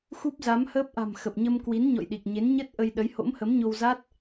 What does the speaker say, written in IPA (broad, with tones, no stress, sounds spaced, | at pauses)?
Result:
x u˦˥ p̚ z a˨˦ m h əː˦˥ p̚ ʔ a̤˨˩ m x ə˨˩ p̚ ɲ ə˧ m k w i˨˦ n ɲ ɔ̰˧˨ j ɗ i˨˩ k̚ ɲ e˨˦ n ɲ ə˦˥ t̚ ʔ ə˧ j ɗ ə˨˦ j h o̰˧˥ m h ə˨˦ m ɲ o˧ w z a˦˥ t̚